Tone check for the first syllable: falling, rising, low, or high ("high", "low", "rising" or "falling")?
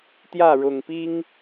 falling